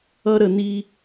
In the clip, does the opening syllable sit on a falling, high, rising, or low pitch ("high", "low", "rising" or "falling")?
high